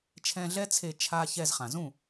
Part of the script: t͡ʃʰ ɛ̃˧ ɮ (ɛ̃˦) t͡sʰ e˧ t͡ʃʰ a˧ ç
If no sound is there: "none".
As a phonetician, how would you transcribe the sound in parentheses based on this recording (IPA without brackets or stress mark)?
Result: ɛ˦